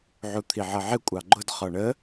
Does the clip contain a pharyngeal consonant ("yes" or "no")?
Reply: yes